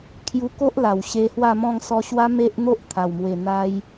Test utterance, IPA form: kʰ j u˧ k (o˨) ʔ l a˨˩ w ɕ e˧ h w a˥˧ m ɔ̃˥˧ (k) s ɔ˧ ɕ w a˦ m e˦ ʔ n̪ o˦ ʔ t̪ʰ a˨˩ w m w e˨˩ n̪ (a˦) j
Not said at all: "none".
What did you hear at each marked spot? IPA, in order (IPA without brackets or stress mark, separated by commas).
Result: o˦, ŋ, a˦